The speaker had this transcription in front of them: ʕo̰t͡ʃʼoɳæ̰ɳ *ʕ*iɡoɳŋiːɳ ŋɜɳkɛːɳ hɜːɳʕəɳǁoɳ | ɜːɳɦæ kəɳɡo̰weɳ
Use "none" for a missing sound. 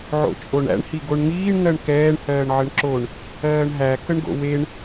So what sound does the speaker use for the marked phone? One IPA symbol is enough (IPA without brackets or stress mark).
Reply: h